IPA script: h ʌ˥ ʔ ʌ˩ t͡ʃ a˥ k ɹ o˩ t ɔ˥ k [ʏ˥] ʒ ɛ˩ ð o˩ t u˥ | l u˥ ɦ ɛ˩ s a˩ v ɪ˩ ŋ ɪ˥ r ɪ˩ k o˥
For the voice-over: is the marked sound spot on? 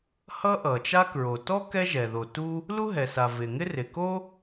no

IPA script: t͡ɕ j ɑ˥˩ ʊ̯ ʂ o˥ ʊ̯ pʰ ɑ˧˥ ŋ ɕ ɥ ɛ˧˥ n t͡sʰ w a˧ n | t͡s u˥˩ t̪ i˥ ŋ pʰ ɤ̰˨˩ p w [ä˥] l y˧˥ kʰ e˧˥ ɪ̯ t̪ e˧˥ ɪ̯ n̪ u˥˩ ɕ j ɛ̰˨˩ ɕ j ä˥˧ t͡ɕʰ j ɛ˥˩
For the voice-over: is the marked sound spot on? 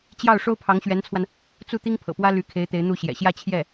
yes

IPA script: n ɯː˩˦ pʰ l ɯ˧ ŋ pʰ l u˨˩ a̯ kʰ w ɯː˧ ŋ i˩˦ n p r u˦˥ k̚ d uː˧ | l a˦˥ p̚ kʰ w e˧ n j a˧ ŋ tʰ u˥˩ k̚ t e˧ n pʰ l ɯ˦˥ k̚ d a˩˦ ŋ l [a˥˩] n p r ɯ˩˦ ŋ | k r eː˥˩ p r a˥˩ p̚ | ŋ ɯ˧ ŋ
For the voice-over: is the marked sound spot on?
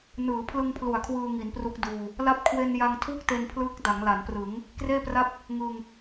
no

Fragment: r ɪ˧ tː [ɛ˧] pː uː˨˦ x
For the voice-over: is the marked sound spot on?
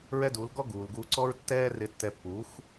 yes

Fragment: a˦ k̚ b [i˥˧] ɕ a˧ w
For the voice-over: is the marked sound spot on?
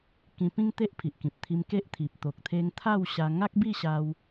yes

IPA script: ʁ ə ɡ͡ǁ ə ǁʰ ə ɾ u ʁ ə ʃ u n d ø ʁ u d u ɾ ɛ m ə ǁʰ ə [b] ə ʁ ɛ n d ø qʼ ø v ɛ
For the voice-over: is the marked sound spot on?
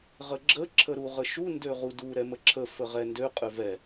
no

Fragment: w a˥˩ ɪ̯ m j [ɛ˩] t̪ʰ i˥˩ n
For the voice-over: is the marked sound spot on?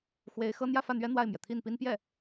yes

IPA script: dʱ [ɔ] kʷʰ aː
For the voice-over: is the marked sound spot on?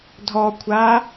yes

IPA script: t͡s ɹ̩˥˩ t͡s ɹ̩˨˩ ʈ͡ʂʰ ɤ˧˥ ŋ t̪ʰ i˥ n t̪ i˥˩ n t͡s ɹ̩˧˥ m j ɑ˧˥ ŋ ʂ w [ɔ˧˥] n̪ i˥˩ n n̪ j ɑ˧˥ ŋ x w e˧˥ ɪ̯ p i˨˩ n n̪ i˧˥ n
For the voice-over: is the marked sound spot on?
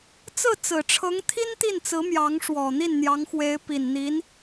no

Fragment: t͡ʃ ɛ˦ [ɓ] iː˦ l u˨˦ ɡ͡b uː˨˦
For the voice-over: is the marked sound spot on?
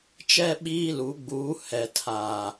yes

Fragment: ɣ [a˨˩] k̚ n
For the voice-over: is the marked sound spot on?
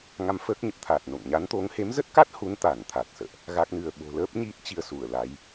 no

